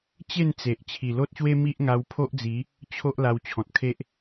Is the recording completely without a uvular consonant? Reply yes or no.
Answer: yes